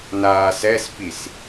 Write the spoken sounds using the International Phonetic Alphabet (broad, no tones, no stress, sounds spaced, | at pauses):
n aː s ɛ s p i s